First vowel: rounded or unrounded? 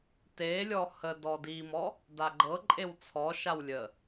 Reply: unrounded